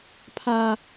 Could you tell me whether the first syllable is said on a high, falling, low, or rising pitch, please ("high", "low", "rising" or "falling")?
high